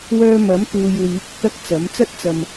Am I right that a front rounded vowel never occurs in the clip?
no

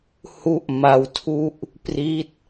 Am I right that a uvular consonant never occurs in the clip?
yes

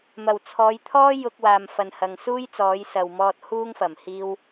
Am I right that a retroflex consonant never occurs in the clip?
yes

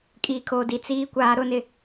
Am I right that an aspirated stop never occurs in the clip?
no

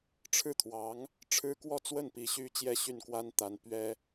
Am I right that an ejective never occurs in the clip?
yes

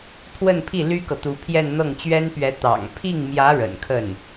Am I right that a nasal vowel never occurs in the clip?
yes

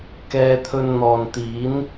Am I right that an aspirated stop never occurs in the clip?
no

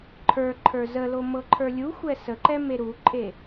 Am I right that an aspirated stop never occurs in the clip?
no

